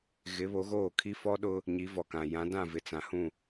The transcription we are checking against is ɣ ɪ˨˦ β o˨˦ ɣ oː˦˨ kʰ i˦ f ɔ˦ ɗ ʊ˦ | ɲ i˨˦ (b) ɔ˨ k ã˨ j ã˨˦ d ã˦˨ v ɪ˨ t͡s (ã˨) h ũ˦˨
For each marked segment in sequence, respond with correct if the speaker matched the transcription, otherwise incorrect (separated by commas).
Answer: incorrect, correct